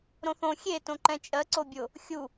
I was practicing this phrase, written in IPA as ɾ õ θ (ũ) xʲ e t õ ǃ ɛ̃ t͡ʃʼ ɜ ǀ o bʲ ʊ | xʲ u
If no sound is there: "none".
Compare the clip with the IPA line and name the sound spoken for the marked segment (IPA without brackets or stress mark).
õ